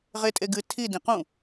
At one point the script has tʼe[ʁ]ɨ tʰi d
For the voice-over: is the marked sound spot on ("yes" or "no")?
no